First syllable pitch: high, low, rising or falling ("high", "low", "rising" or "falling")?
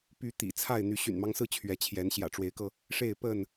rising